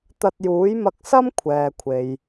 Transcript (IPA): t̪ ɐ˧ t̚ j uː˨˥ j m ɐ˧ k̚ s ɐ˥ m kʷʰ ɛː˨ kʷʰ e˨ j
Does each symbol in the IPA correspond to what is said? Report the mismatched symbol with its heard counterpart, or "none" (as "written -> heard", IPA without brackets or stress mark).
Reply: none